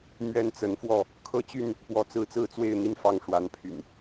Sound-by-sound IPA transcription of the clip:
mɥɛ˦nt͡sə˨˦nfwɔ˥˨ | kʰɤ˦t͡ɕy˥˨n | pwɔ˨˦t͡sɹ̩˨˦t͡sɹ̩˥˨t͡swe˥˨ɪ̯ n̪i˦nfɑ˥˨ŋ ʂwa˨˦npʰy̰˨˩n

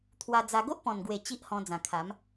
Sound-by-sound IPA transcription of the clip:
t̪ʰwa˧d͡za˧ ɡo˦ʔpɔ̃˨˩nɡwe˨˩ t͡ɕi˦ʔhɔ̃˧ d͡zã˨˩kʰa˨˦m

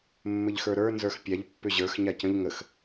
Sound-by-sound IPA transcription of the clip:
mːɘʎxə˞ɾə˞ nzə˞xpʲaʎ pːʏʑə˞x ɲacə̃ʎ ŋəx

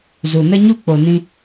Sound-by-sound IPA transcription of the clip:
zu˨nə˦ɲu˦ k͡po˨nĩ˧

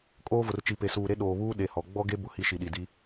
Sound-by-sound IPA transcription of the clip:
kʼoː˦vʊ˨rt͡ʃi˨ pe˨suː˨ɾe˦ ɗoː˨βuː˦ ɗe˨ hɔ˨ ɡ͡bɔ˦ɡe˦ bʊ˦hi˦ʃi˨ɗi˨ di˦

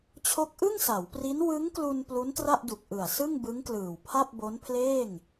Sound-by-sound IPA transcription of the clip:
t͡ɕʰo˦˥k̚ʔɯ˥˩ŋsa˩˦wpri˦˥n wɯ˦˥ŋklu˧n plu˦˥ntra˥˩ʔdu˨˩k̚ ʔɯ˨˩a̯ sɯ˥˩ŋbɯ˦˥ŋklɯː˨˩w pʰa˥˩p̚bo˦˥npʰleː˥˩ŋ

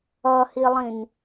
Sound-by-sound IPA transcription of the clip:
ʌhilˠĩn

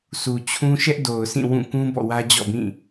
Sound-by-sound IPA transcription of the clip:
sʰu˨t͡ɕʰũ˦ ʃɛ˦ʔdo˨ʊ̯ sʰĩ˦˨wũ˦˨kũ˦ bɔ̰˦˨wä˦d͡ʑɔ̰˦˨bĩ˦˨

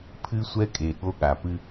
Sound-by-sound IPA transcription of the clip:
pʰɨ˦ sʷɛ˦kʼe˨ɠo˦ ɠa˨pɨ˦

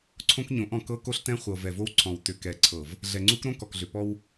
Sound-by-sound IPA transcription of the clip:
ǀʰõ˦kɲõ˨˦ʔɔ̃˨ kɤ˦ko˦ɬtɛ̃˦ χʷɤ˨vɛ˨vo˦wǀʰɔ̃˨w tʏ˨kɛ˨ǀʰɤ˨v | ɮɛ˨ŋ͡ǀu˦k ɾõ˦kɔ˨k ɮʏ˨pɔ˦w

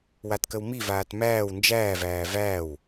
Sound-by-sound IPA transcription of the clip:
watkəwmivaːt mæːw nd͡ʒæːvæː væːw

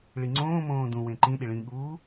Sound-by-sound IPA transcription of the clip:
ɭiŋ͡ǀõːmõː dũ wẽǃĩɗi ɭĩɠuː

